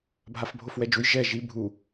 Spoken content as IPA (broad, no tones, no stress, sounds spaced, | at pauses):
bʱ a f bʱ o f w ɛ d͡ʒ u j ʒ ɛ ʒ i bʱ u